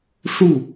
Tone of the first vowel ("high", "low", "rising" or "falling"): falling